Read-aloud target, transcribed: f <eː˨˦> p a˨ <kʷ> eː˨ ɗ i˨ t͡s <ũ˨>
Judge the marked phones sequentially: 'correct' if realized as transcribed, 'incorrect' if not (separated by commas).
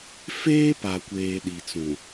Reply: incorrect, correct, correct